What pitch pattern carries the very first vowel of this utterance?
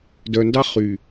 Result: low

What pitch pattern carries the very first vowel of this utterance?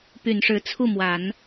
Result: low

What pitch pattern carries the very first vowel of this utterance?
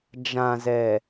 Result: low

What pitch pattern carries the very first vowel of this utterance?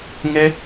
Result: high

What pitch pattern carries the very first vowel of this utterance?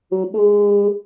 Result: low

